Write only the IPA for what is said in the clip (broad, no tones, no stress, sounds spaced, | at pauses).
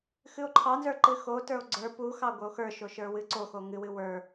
x ɨ o̯ ǃʰ ɑ n z ə˞ ǃ ɨ x o t ə˞ o̯ ɡ͡ǀ ə˞ p u x ɑ ɡʷ ə˞ o̯ x ə˞ ʃ o ʃ ə˞ w ɨ ǀ o x o ŋ ɨ w ɨ w ə˞